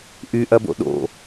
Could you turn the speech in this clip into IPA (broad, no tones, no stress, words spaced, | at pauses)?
ʔyʔɐbo̰ ɗo̰